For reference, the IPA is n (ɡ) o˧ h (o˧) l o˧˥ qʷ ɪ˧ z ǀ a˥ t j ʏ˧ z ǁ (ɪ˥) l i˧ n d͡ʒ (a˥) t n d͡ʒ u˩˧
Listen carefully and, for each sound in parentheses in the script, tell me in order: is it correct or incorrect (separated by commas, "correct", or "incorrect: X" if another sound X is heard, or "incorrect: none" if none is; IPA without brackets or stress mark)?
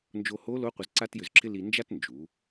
incorrect: d͡ʒ, incorrect: o˧˥, correct, correct